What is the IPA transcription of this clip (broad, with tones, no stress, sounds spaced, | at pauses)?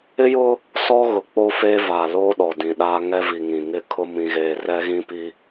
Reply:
ɪ˦ j ʊ˦ | s ɔ˦ ɣ ʊ˨ k͡p o˦ f eː˦ v a˨ l o˦ ɗ ɔ˨ d ĩ˨ ɗ a˦ ŋ ɛ˦ v i˨ ŋ ĩ˨ ŋ ɪ˦ kʰ ʊ˦ m ĩ˦ ɣ eː˦ r ɛ˦ ɣ ĩ˦ p i˦